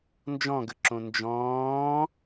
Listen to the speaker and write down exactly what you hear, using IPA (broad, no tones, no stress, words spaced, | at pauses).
nd͡ʒɔ̃ɡəǁõ nd͡ʒɔ̃ː